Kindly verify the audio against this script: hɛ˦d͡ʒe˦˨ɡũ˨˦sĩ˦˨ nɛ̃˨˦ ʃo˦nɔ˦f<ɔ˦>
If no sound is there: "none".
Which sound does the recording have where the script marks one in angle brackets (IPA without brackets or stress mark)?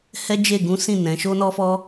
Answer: ɔ˦